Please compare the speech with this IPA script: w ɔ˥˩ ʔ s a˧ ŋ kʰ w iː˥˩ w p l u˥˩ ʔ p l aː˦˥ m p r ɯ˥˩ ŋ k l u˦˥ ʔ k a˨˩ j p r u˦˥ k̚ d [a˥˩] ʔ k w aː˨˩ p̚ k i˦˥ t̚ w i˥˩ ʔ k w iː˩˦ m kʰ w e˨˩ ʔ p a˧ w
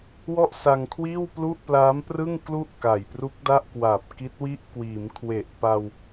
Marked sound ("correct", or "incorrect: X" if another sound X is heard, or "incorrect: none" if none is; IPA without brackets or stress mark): correct